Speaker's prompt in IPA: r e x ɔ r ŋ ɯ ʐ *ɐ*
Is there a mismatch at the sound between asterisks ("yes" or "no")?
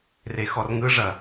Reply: no